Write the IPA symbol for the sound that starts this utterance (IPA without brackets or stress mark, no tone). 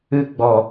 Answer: ɨ